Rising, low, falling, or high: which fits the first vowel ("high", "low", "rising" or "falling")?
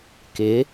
rising